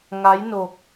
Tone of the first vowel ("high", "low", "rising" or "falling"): rising